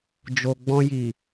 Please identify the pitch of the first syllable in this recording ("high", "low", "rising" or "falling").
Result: low